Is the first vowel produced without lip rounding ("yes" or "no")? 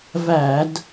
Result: yes